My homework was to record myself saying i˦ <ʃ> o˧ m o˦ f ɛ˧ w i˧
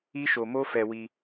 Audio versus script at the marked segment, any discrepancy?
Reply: no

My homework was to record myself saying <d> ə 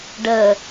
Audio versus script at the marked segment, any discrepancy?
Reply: yes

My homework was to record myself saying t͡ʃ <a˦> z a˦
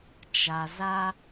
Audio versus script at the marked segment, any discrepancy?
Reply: yes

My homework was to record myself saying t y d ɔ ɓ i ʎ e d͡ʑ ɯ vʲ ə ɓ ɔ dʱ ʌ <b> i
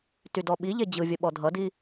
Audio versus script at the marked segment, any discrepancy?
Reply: yes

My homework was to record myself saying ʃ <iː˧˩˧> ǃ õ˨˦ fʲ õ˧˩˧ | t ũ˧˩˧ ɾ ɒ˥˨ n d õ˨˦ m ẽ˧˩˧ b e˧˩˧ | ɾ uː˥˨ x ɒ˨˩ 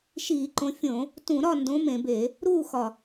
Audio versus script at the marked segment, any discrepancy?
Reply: no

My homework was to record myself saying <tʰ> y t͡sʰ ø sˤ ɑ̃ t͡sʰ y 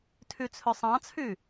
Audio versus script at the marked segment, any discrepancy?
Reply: no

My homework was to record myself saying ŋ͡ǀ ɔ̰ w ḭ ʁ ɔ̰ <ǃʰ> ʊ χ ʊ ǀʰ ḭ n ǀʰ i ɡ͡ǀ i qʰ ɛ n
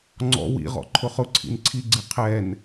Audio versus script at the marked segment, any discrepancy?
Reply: no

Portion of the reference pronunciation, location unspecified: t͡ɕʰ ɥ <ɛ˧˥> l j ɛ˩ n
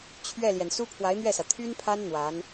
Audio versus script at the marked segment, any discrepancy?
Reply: yes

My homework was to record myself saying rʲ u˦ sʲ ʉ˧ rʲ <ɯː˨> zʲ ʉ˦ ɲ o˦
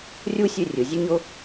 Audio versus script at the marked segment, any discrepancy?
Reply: yes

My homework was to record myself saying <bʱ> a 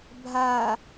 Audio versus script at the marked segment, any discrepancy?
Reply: no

